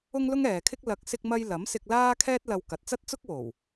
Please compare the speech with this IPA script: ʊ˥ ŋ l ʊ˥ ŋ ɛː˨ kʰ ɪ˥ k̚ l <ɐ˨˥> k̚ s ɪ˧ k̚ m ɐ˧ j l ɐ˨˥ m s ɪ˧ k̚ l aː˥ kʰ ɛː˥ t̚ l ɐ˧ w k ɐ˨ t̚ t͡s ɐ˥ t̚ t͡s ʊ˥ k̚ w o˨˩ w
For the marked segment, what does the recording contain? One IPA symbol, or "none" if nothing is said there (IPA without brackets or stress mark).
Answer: ɐ˨˥